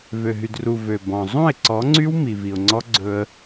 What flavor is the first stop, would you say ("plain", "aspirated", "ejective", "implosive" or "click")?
plain